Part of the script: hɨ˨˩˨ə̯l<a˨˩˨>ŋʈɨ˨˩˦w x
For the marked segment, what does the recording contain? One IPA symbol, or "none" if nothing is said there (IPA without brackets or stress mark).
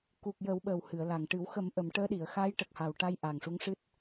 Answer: a˨˩